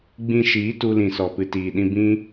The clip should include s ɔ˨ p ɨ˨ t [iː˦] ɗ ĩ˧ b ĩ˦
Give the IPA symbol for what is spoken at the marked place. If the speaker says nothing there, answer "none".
iː˨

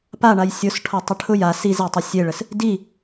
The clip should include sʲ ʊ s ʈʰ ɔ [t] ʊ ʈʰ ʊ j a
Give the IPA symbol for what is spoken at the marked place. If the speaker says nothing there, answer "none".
tˤ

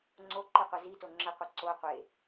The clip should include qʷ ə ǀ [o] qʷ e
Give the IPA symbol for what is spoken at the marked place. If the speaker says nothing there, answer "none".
o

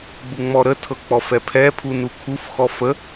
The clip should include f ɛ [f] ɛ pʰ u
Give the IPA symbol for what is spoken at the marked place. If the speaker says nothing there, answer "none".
pʰ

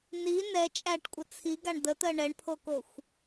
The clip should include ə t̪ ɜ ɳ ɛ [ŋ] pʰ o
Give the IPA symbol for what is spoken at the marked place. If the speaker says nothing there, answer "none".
ɳ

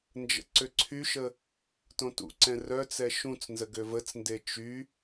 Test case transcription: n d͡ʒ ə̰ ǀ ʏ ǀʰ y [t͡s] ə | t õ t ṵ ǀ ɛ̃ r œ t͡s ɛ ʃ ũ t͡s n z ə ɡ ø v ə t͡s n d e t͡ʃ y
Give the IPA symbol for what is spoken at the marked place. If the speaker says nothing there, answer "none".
ʃ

